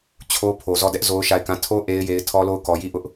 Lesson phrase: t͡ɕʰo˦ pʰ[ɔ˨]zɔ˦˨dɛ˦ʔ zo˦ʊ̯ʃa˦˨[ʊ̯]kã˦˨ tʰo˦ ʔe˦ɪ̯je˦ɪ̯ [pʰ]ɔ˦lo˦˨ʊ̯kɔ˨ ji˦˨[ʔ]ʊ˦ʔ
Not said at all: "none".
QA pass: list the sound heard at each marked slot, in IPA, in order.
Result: o˨, ɪ̯, tʰ, ʔ

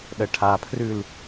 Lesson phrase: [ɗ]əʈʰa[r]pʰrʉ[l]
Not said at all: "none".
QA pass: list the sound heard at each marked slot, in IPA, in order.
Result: ɗ, none, l

